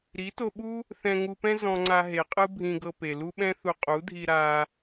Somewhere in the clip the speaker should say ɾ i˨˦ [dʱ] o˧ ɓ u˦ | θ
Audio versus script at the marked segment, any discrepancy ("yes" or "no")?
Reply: yes